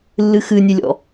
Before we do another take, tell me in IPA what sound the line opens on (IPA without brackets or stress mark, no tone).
lː